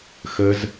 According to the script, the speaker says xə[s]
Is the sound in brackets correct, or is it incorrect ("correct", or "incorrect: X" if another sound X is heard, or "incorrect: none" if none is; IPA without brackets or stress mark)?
incorrect: z